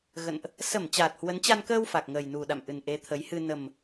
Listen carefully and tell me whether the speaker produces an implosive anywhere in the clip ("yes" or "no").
yes